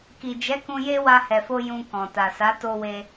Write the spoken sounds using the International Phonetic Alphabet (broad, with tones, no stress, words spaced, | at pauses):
ki˨d͡ʒɛ˨˦ kũ˧je˦ wa˧hɛ˨fo˧ jũ˧kɔ̃˨ ta˨sa˨˦ to˧we˧